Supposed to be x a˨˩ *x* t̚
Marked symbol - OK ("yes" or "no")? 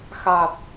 no